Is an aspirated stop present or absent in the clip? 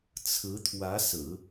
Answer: present